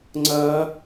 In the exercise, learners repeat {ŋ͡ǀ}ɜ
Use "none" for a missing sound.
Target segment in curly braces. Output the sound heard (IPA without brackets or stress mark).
ŋ͡ǀ